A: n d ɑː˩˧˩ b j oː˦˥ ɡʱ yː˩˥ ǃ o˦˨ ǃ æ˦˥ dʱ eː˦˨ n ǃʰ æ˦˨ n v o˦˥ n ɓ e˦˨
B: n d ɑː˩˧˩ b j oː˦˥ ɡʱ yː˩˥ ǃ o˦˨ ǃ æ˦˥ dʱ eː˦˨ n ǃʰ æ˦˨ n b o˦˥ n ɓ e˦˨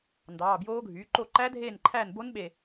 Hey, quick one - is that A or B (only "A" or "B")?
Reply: B